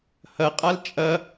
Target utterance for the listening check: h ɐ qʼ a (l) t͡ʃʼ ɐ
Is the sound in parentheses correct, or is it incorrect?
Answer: correct